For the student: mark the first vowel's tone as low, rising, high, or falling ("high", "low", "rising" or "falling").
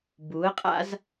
rising